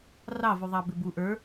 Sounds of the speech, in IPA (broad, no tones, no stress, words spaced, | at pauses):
rɑvuðˤɑ bɪbu ʔə˞